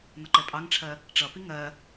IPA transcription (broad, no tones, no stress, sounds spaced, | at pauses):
n ʌ ǃ ɛ pʼ ɑ ŋ ʈ͡ʂʰ ɜ | ʈ͡ʂ ʌ p i ŋ ɜ